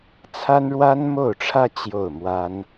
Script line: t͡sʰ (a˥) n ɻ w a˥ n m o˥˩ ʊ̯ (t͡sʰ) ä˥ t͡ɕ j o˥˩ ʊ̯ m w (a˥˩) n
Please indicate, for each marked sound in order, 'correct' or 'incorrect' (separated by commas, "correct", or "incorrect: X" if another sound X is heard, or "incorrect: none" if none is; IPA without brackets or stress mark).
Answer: correct, incorrect: ʈ͡ʂʰ, incorrect: a˥